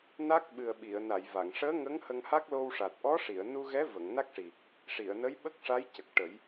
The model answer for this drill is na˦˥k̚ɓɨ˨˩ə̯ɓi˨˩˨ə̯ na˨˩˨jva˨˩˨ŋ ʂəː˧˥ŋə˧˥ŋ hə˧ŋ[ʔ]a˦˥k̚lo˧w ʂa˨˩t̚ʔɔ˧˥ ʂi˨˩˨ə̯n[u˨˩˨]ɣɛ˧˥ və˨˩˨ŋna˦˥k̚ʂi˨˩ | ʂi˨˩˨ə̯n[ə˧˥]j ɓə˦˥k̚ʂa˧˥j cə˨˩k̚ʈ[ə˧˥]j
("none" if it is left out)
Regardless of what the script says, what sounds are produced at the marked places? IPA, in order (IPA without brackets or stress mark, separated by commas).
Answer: h, u˧, ə˧˥, ə˨˩˦